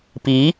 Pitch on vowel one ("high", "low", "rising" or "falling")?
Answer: rising